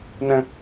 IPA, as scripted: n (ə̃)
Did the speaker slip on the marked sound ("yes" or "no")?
no